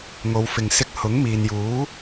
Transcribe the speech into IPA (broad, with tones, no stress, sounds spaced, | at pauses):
ŋ o˨˧ w f ɪ˨ ŋ s ɪ˧ k̚ h ʊ˨˥ ŋ m iː˨ n j uː˨˥